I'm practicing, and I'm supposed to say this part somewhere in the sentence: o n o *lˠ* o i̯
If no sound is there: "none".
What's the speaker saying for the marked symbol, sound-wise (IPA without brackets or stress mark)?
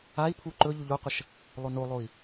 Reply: lˠ